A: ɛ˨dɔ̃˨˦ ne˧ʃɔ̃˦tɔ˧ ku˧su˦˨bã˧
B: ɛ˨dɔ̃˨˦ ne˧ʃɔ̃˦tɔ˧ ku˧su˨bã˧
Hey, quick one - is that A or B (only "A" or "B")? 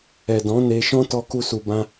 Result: B